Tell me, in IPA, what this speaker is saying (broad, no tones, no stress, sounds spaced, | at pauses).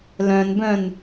l œ̃ n b œ̃ n